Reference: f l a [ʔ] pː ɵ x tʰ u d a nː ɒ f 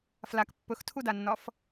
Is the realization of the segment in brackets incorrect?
yes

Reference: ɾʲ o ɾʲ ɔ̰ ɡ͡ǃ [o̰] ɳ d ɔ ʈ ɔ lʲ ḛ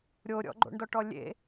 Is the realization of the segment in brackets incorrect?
no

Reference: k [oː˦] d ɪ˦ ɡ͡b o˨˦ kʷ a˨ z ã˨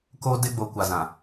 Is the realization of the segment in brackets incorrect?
no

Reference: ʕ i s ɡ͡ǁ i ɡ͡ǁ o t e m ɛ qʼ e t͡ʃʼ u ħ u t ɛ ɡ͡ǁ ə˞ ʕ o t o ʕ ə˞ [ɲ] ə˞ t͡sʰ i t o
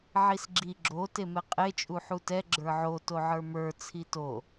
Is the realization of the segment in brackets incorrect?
yes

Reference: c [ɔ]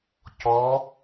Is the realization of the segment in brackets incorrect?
no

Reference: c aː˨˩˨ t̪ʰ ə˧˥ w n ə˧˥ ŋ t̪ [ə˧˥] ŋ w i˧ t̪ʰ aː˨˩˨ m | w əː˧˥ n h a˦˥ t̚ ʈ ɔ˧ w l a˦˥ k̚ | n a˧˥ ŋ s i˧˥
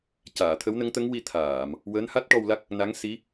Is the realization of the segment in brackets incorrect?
no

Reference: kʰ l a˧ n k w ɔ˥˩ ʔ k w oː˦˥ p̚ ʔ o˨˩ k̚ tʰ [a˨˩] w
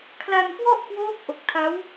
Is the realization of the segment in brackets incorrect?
yes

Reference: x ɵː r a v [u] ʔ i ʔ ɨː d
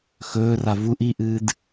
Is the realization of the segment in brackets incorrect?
no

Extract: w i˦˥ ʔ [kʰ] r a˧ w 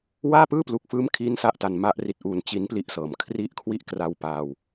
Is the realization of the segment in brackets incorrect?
yes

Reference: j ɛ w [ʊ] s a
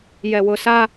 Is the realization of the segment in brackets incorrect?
no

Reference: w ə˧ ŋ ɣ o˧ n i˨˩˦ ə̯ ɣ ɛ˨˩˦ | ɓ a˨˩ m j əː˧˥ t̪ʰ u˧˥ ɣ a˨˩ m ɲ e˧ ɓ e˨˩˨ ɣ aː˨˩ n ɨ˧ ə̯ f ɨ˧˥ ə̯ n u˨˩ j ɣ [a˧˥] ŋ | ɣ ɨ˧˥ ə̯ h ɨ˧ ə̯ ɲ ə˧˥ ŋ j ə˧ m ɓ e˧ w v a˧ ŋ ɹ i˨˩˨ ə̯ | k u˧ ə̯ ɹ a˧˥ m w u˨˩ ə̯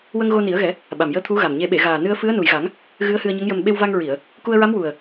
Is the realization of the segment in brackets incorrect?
yes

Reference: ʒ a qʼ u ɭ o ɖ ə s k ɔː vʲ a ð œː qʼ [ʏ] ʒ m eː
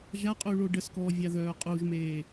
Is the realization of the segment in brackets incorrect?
yes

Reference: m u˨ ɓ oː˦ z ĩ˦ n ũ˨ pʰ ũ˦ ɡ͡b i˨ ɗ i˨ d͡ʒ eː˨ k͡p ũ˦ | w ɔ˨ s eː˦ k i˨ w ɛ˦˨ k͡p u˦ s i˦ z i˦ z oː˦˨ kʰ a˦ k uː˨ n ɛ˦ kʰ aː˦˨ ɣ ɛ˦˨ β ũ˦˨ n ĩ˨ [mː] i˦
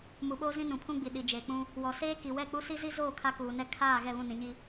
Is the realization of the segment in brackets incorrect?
yes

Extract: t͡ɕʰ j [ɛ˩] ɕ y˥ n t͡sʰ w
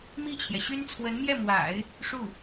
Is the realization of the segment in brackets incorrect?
no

